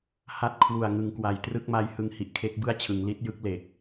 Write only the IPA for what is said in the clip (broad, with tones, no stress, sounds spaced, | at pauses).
h a˦˥ t̚ kʰ w u˨˩ a̯ ŋ ɯ˩˦ ŋ k w a˩˦ j t r ɯ˥˩ k̚ m a˦˥ j h ɯ˧ ŋ h i˨˩ ʔ kʰ e˦˥ k̚ b ɯ˥˩ a̯ t͡ɕʰ ɯ˩˦ ŋ l i˦˥ t̚ j ɯ˦˥ k̚ l e˨˩ k̚